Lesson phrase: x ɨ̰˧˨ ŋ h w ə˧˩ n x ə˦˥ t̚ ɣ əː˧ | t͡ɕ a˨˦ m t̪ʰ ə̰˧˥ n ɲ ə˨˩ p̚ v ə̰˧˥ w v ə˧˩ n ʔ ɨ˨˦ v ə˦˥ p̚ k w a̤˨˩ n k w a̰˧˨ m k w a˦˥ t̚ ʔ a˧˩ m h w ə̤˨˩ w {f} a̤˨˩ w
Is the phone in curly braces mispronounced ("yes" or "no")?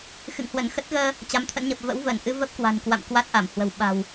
yes